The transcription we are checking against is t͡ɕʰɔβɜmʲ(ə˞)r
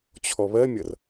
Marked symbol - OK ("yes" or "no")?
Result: no